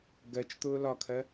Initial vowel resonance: oral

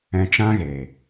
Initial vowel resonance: nasal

